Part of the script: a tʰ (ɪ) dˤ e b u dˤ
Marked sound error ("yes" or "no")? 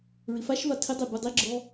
no